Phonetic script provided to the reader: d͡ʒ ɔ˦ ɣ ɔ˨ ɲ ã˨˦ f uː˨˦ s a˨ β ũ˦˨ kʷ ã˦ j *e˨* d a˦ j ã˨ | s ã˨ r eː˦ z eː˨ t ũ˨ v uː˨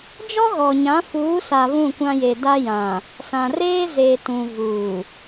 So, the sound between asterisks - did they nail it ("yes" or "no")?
yes